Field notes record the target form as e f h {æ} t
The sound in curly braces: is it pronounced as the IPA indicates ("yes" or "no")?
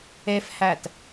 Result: yes